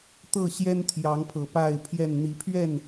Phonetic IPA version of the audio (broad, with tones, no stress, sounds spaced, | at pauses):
t̪ ɤ˥˨ ɕ j ɛ˦ n t̪ʰ j ɑ˨˦ ŋ pʰ ɤ˨˩ p a˥˨ ɪ̯ pʰ j ɛ˥˨ n n̪ i˨˦ pʰ ɥ ɛ˥˨ n